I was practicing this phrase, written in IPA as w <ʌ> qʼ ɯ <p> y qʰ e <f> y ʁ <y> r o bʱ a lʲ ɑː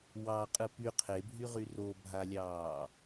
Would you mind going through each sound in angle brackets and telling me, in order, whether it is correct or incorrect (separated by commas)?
incorrect, correct, incorrect, correct